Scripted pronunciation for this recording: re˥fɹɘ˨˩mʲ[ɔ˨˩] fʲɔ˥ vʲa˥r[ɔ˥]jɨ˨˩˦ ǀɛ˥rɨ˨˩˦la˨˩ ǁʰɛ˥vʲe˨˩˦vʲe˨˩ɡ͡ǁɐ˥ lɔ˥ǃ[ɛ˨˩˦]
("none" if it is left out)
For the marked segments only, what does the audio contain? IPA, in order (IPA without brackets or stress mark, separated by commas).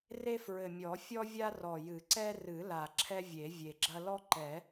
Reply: ɔ˨˩˦, ɔ˨˩, ɛ˨˩˦